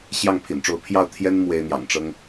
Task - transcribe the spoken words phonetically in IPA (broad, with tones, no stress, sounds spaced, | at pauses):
ɕ j ɑ˥˩ ŋ pʰ ḭ˨˩ n ʈ͡ʂ o˧˥ ʊ̯ pʰ j ɑ˥˩ ʊ̯ t̪ʰ j ɛ˥ n m w e˥ ɪ̯ n̪ j ɑ̰˨˩ ŋ ʈ͡ʂ ɤ˥ ŋ